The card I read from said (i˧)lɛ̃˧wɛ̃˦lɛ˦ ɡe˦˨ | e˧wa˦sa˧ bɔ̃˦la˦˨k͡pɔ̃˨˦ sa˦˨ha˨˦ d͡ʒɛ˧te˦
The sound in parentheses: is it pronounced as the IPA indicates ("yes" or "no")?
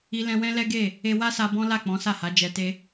yes